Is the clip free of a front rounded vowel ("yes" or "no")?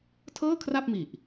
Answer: yes